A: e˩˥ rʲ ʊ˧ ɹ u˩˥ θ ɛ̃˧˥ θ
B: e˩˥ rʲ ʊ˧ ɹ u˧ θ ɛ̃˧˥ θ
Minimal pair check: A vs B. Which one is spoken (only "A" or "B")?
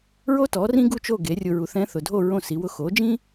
A